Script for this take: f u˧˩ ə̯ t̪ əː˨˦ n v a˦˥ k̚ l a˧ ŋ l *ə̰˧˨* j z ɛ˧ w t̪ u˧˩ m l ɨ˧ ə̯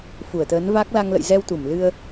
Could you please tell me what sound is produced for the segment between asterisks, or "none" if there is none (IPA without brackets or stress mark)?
ə̰˧˨